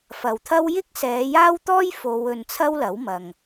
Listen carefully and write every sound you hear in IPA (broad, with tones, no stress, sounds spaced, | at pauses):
f ɐ˨ w t̪ʰ ɐ˥ w j ɪ˥ k̚ s ɛː˨˧ j aː˥ w t̪ ɔː˥ j f o˨˧ w ɵ˧ n t͡sʰ ɐ˥ w l ɐ˨˥ w m ɐ˨ ŋ